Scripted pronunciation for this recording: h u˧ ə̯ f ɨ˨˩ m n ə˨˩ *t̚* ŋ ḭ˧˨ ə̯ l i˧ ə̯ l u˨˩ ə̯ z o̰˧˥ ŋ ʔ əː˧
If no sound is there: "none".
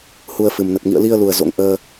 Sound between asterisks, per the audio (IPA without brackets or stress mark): t̚